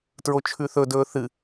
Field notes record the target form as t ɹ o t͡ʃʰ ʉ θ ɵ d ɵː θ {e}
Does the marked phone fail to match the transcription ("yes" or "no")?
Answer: yes